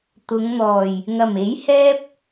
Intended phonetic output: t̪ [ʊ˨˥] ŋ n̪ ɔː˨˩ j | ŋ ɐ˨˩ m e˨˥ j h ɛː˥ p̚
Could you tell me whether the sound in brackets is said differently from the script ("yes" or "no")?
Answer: yes